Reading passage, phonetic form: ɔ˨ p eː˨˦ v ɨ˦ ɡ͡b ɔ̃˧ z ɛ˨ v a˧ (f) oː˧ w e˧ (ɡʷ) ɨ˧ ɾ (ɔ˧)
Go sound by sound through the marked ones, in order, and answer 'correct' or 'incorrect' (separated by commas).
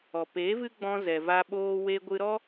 incorrect, correct, incorrect